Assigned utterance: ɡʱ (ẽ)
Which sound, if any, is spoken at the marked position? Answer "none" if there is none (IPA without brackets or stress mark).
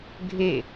e